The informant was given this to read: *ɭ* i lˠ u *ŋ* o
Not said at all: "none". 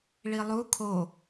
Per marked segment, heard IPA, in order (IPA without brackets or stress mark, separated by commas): ɭ, kʰ